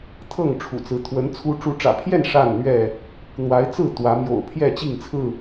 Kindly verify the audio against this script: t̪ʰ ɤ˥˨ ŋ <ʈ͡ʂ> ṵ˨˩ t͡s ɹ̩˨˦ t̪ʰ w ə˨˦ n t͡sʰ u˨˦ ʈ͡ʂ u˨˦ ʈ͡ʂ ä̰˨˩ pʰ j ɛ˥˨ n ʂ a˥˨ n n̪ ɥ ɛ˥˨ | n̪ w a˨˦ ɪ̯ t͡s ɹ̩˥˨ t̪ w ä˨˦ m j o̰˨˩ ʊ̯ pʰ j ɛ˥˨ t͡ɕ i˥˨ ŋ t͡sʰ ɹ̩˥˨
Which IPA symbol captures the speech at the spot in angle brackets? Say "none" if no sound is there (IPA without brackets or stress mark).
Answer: ʈ͡ʂʰ